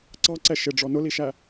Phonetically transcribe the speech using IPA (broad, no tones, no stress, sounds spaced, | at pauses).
ǀ ɑ ǀ ɛ ʃ ɪ ɖ͡ʐ ɔ n ʊ l i ʃ æ